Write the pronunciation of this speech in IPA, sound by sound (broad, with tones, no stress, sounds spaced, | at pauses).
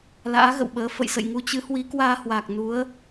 l a̰ː˧˥ ɣ ə̰˧˨ w ɓ əː˨˦ f ə̰˧˨ j s ə̰˧˨ j ŋ u˧ t͡ɕ ɨ˨˦ h w i˨˦ k w aː˧ h w aː˨˩ k̚ n u˨˦ ə̯